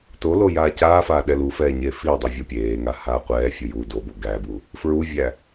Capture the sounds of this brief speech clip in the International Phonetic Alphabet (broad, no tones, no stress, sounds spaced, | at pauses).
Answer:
t o l o j aː c aː f aː ɗ ɛ l u f ɛː ɲ e f i dˤ i vʲ o pʲ eː ŋ a h aː qʷ ɛː fʲ u j u d o b o ɡ æ b u | f ɹ u vʲ æ